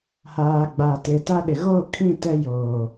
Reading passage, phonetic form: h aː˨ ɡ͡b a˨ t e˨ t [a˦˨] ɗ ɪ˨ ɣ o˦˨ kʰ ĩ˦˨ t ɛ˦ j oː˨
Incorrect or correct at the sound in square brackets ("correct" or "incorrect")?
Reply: incorrect